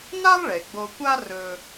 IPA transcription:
n a˥ lˠ ɭ e˩ ɡ͡b o˧ kʷ a˥ r ɵ˧

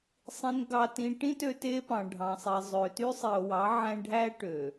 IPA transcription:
sˤ ĩ˨ n ɡ ɑ˨ t ĩ˨ ʈ ĩ˦ t ø˦ t e˦ p ɑ̃˨ ɖʱ ɑ̃˨ sˤ i˨ zˤ ø˨ t y˦ sˤ i˨ o̯ w ɑ˨˦ ʕ æ̃˦ ɖʱ æ˦ ʈ ø˨

